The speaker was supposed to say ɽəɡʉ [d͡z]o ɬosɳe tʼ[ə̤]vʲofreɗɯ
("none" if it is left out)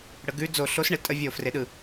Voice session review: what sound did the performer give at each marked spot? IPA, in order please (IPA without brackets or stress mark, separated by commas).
d͡z, ə